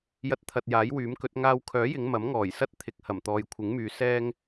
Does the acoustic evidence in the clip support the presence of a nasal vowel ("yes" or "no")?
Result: no